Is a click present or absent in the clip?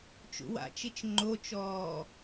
present